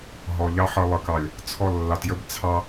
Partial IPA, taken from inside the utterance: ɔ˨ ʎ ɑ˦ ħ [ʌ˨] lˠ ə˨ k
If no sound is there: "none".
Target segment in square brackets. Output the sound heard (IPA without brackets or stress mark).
ʌ˨